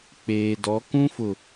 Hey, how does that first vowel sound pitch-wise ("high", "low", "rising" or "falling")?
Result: low